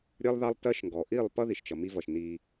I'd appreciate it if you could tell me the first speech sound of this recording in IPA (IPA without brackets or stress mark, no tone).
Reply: ɾʲ